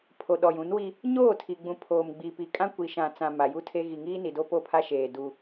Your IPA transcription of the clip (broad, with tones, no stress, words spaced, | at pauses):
pʰo˨ɗɔ˨jũ˨˦nwi˦ | ɲoː˦˨tʰi˨ɡ͡bũ˨ pʰoː˨mɡ͡bi˨pi˨kʼã˦ kʷi˨ʃã˨t͡sã˨ ma˨ju˦tʰe˦ ɣi˨ŋiː˦ni˨do˦ po˦˨pʰa˦ʃeː˨ du˦